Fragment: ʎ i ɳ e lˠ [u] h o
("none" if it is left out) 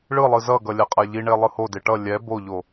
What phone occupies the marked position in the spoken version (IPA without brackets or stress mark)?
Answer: ɯ